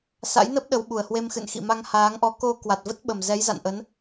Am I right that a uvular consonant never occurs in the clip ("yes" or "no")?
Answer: yes